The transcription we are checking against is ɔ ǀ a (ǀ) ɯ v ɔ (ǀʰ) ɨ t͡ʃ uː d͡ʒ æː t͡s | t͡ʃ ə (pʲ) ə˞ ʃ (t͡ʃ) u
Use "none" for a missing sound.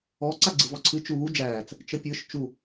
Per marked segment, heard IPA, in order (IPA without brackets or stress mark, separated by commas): ɡ͡ǀ, ǀʰ, pʲ, t͡ʃ